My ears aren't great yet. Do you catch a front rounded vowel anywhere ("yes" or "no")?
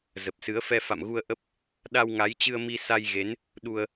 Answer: no